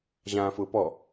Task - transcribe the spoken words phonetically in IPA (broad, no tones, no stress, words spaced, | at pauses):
ʑãːfʊːpɔ